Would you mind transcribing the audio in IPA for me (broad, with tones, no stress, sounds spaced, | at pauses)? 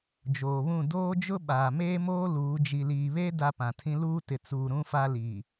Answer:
d͡ʒ oː˨ β ũ˦˨ d oː˦ d͡ʒ ʊ˦ ɓ aː˨ m eː˦ m oː˦ l uː˨˦ d͡ʒ i˨ l iː˨ β e˦ d a˦ p ã˨ tʰ ĩ˦ l uː˦ t ɪ˨ t͡s uː˨ ɾ ũ˦ f a˦ l i˨